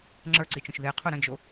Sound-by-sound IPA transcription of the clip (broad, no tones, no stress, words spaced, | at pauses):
ŋ͡ǁə˞ǀit͡ʃõʃ ðeqʰo ɾə̃d͡ʒo